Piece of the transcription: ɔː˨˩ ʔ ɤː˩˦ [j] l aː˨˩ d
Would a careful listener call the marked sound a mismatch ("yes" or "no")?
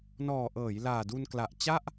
no